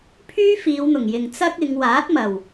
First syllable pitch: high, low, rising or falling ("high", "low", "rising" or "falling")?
high